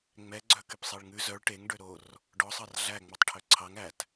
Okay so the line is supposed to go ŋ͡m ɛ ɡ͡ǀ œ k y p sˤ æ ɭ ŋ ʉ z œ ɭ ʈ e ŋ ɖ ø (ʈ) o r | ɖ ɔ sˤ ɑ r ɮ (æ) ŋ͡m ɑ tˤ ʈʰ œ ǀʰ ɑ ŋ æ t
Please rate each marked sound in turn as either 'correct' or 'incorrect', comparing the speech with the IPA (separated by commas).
incorrect, correct